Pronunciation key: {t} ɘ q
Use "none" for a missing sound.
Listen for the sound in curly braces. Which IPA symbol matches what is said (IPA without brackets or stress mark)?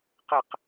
q